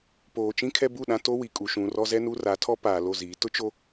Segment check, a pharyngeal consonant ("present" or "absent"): absent